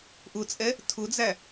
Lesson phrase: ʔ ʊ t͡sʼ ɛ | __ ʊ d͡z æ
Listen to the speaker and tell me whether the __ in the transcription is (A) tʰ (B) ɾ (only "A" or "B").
A